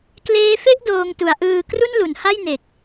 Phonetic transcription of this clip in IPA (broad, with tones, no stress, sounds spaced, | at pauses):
k l eː˧ f e˥˩ ʔ d oː˧ ŋ t u˩˦ a̯ ʔ ɯː˧ k r u˥˩ n l u˩˦ n h a˥˩ j n e˨˩ k̚